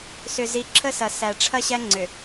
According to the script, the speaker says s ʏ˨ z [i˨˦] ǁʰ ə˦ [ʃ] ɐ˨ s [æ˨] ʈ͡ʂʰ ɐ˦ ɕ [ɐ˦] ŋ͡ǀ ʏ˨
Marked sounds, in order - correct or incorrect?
correct, incorrect, correct, incorrect

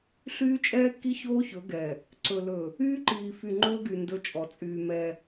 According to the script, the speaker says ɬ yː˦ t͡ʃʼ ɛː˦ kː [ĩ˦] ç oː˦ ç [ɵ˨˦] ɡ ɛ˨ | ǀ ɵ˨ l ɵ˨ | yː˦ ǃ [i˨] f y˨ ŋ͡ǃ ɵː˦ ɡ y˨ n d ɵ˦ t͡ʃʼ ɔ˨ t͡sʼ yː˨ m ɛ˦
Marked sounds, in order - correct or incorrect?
incorrect, correct, incorrect

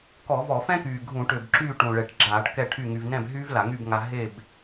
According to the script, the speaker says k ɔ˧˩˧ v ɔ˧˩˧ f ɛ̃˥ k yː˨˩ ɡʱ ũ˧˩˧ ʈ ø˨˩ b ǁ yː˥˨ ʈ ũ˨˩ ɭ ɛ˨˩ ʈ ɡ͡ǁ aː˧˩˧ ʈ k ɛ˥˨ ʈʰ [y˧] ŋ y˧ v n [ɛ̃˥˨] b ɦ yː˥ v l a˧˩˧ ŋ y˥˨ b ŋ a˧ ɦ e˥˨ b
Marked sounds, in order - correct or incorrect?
incorrect, correct

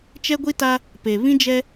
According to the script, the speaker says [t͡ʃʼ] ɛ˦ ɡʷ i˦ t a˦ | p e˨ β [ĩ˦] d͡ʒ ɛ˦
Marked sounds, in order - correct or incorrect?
incorrect, correct

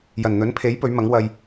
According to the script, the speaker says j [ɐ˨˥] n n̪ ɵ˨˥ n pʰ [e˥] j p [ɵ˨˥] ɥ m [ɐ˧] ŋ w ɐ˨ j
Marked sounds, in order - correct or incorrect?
incorrect, incorrect, correct, incorrect

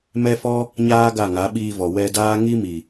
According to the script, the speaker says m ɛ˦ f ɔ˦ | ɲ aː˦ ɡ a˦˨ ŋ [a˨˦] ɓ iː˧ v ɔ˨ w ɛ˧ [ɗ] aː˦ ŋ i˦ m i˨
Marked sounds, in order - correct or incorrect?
correct, incorrect

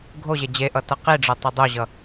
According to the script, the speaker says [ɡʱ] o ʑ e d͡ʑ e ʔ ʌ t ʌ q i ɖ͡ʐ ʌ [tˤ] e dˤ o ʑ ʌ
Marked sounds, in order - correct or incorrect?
correct, correct

